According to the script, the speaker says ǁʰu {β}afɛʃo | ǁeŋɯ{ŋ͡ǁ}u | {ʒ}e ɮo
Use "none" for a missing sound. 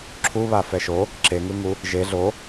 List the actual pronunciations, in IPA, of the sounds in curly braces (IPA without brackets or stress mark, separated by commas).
β, ŋ, ʒ